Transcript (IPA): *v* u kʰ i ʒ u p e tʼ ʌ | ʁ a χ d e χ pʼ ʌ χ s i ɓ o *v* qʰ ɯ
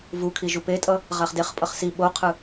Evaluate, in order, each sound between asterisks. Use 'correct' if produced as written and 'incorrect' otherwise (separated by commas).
correct, incorrect